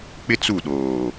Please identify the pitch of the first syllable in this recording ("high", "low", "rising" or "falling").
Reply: high